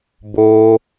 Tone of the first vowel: high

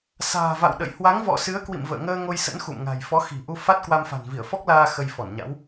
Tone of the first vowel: low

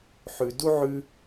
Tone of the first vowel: low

